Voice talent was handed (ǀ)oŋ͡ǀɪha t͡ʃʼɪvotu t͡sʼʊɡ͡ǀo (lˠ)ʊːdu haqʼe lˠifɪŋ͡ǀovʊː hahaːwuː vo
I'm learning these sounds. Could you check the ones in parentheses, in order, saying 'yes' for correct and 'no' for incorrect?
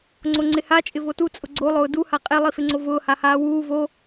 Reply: no, yes

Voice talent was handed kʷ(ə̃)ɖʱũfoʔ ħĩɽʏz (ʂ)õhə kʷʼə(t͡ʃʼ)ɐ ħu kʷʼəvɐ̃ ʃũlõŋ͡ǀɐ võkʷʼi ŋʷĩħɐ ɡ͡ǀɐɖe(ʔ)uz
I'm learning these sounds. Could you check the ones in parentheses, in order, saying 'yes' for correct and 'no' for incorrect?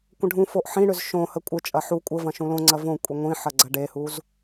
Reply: yes, no, yes, no

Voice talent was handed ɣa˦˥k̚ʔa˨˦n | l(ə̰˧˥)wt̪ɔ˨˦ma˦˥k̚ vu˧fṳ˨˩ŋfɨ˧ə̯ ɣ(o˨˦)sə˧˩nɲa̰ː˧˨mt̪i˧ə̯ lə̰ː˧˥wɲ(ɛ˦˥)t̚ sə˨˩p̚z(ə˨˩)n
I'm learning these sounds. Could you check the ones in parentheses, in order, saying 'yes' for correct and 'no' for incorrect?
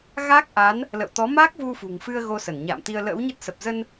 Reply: no, no, no, no

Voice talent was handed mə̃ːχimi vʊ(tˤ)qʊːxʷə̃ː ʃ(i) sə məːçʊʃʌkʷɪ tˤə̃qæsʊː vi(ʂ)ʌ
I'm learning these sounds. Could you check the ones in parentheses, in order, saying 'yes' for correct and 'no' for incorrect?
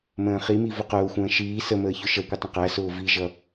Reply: no, no, no

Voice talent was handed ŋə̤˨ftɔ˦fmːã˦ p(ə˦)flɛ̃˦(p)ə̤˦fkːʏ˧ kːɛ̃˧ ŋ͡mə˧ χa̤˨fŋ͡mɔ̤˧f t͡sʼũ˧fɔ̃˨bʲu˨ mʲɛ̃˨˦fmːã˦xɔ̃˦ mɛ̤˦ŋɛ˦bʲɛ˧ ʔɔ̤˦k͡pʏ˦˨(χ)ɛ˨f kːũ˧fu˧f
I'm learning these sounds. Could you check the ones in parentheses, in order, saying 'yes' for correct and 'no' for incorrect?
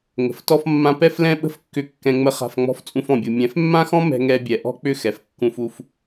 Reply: no, no, no

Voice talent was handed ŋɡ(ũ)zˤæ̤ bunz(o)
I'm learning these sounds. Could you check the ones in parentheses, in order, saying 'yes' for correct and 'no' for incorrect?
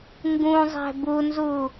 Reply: yes, no

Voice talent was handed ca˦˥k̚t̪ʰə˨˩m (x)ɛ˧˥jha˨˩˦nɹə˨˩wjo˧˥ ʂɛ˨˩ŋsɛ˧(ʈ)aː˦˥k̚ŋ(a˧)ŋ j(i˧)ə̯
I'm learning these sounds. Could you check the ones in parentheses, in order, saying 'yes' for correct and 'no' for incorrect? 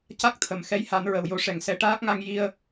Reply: yes, yes, yes, yes

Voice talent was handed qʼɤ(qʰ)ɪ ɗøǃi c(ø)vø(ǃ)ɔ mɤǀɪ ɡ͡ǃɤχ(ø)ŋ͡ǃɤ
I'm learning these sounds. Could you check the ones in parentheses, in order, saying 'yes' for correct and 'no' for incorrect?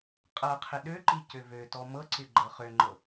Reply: yes, yes, no, yes

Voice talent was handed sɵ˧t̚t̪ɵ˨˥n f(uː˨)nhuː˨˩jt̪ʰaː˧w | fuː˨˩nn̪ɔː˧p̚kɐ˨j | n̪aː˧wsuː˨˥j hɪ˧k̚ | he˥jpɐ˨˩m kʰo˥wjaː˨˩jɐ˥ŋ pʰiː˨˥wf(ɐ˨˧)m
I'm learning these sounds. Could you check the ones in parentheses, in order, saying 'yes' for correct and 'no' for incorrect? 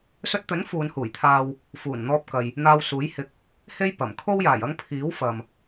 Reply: no, no

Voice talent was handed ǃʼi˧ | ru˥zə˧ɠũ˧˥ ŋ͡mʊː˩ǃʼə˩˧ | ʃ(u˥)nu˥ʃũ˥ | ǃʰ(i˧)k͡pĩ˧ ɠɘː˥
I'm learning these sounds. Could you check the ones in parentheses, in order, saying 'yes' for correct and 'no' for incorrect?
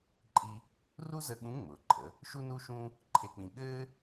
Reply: yes, no

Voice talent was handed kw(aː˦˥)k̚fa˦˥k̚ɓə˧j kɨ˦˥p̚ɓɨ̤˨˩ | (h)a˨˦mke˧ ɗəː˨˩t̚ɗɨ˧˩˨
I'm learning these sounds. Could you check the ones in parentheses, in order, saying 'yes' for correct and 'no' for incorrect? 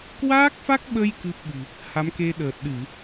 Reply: yes, yes

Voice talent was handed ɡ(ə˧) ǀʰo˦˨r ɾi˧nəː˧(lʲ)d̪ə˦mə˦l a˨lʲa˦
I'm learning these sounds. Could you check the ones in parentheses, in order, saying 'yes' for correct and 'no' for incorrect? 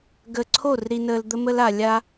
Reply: yes, no

